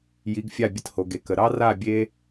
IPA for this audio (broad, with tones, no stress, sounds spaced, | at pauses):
j i˩˥ ɡ fʲ a˥˩ bʲ ə˧ t h o˩ ɡ e˩ k ə˩ ɾ ɑ˥ r a˥˩ bʲ e˥